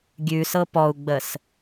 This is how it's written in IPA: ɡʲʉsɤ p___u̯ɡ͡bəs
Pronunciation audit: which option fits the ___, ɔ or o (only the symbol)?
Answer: ɔ